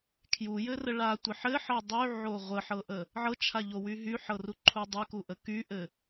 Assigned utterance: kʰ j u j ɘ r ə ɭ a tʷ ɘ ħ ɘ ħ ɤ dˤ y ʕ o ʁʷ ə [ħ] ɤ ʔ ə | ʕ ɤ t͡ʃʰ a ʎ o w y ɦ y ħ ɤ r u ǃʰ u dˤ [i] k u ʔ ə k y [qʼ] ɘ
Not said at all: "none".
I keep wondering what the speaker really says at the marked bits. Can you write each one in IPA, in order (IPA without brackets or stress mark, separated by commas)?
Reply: ħ, y, ʔ